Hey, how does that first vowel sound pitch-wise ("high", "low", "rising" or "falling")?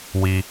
low